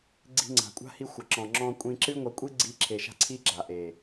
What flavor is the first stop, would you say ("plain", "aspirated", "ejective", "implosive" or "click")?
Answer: click